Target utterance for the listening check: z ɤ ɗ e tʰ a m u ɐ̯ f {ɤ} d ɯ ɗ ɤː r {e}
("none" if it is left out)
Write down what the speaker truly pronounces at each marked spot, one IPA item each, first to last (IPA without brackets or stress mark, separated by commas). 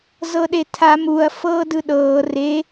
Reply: ɤː, e